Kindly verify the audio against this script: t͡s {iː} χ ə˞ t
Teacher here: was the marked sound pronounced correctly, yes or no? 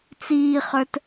yes